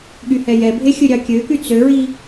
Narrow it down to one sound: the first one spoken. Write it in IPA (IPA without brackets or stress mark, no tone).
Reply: ɠ